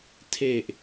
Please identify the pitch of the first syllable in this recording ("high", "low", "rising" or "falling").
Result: low